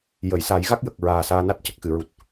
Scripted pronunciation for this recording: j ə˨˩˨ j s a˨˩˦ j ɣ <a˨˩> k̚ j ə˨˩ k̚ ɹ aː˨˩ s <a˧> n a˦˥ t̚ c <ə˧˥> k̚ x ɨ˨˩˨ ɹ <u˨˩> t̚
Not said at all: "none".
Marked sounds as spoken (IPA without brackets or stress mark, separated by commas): a˦˥, aː˧, ə˨˩, u˨˩